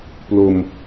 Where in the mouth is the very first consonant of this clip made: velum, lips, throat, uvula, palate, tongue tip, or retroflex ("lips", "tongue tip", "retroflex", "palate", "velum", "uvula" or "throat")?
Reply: lips